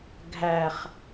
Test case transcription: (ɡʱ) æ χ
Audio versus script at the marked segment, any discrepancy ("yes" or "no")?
no